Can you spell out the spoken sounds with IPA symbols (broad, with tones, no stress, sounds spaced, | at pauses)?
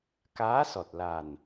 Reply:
k aː˧˥ s ɔ˨˩ t̚ l a˨˩ n